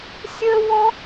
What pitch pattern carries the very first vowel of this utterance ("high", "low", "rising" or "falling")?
high